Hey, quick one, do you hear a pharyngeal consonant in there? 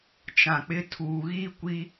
no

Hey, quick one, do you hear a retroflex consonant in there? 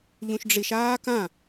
yes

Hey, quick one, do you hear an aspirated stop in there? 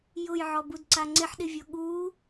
no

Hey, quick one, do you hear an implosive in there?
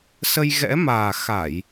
no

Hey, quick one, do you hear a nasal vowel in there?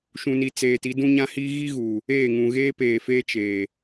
yes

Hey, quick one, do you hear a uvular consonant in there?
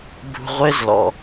yes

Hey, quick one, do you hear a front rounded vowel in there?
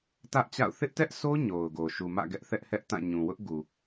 no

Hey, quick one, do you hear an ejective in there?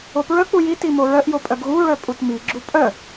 yes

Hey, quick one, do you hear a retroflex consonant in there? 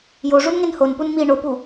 yes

